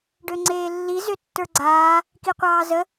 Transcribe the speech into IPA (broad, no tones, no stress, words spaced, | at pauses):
ɖøŋ͡ǀeːlːi zøtːə˞ɡ͡ǀaː | kiqʷɑːzə